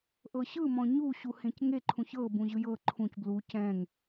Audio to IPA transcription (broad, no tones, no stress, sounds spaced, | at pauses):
ʔ ɤ ɕ ɯ m ɔ̃ ɲ u ɕ u h ẽ c ŋ e ǃʰ ũ ç ɤ b ũ ʑ ɯ j ɤ ǃʰ ũ c b l u c ɛ̃ ŋ